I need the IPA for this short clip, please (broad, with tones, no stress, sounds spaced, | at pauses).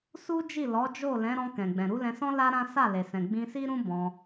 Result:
s u˦ d͡ʒ i˦˨ l ɔ˨˦ d͡ʒ o˦˨ l ɛ̃˨˦ ɾ ɔ̃˧ k ɛ̃˨ ɡ͡b ɛ̃˨ ɾ u˨˦ l ɛ̃˧ s ɔ̃˦ l a˦ ɾ ã˦ s a˦˨ l e˨ s ɛ̃˨ ɡ͡b ĩ˧ s i˦ ɾ ũ˦ b ɔ̃˧